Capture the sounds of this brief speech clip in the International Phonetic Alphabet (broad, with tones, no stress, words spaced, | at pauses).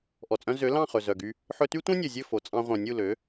ʔɔ˩t͡sʼœ̃˧ zø˩˥ lɑ̃˥˩χɵ˩ zœ˩ɡy˧ | ħɵ˧ty˥tʷœ̃˥nʲɵ˩ zʲɵ˥˩ fo˩t͡sʼɑ̃˧ ʁʷœ̃˩nʲu˥˩lø˩˥